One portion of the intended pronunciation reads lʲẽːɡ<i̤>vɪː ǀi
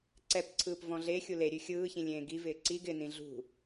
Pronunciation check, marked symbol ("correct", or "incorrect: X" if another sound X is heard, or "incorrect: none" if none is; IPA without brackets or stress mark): incorrect: i